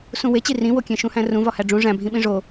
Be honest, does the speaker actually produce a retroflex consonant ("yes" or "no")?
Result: yes